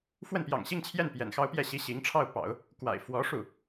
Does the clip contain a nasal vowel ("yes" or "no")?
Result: no